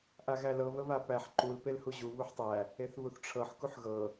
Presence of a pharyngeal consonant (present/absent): present